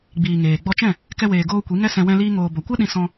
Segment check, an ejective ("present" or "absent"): absent